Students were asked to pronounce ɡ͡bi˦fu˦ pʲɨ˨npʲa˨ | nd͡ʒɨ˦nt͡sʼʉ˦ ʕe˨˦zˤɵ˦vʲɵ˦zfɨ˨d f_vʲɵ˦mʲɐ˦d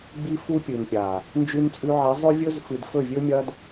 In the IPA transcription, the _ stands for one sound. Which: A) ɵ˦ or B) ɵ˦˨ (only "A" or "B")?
B